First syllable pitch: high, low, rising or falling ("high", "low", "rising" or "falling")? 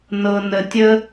low